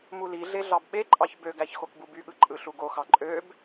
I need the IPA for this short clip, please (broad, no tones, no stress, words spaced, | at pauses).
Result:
muliɮe ɮɑbɓeǃʼɑç bøɡæç xokbubyɠɯ ǃʼɯɬuɡoxɑ ǃʼøb